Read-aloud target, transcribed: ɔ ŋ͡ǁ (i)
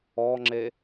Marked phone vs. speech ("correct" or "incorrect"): incorrect